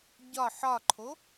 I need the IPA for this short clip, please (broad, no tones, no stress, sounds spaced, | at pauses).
ɟ ɒ ħ ɒ ǃʰ o